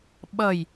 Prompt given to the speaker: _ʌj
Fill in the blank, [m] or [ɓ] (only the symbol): ɓ